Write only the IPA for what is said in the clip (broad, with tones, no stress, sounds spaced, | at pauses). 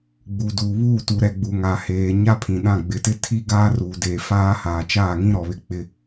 ɡ͡b u˨ d uː˨ β uː˦˨ t u˨ ɾ ɛ˨ ɡ͡b u˨ ŋ a˨ h eː˨ ɲ a˦ pʰ ĩ˨ ɗ ã˦˨ ɡ͡b ɪ˨ t ɪ˦ tʰ i˦ ɡ aː˦ r uː˨ d eː˨ f aː˦ h aː˨ t͡ʃ aː˦˨ ŋ ĩ˦ ɾ ɔ˨ β ɪ˦ k͡p ɪ˦